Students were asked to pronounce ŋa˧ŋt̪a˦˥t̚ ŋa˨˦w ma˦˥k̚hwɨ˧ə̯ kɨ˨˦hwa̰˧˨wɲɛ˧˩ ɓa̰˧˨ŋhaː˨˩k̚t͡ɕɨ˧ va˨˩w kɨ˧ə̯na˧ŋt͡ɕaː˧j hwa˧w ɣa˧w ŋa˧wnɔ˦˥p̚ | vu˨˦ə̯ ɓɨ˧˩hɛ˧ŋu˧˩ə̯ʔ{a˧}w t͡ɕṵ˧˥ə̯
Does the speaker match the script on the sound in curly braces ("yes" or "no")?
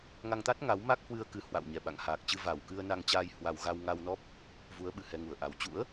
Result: no